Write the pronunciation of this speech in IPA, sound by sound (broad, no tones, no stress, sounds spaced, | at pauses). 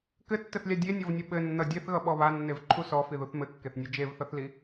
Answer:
k ɘ tː ɘ θ lʲ a dʲ e nʲ ɔ v nʲ ʌ ɓ ɘ nː ʌ dʲ e θ ɣ ʌ ɓ ɔ β a nː e v ǃʰ u s ɔ f i ð u θ m ɘ kː e θ nʲ e d͡ʒ e v θ ʌ θ l i